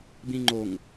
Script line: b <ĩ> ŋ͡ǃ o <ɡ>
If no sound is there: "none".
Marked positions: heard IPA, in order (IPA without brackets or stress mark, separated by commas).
ĩ, ŋ